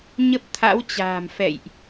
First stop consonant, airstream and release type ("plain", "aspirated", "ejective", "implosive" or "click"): plain